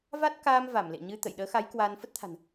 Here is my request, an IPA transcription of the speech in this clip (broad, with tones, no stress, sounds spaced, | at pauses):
v a˦˥ t̚ k aː˧ m v a˧˩ m l ḛ˧˨ ɲ ɨ˧ t̪ ə̰˧˨ j ɗ əː˨˦ x a˨˦ j k w a˧ n f ə˦˥ t̚ t̪ʰ a̤˨˩ n